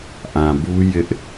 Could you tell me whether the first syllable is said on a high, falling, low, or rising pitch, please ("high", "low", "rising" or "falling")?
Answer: low